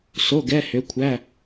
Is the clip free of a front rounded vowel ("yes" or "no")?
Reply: no